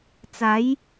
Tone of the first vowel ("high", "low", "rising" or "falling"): rising